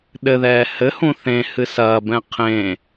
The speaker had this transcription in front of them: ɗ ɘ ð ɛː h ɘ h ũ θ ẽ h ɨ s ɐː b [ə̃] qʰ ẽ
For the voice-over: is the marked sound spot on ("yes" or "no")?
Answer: no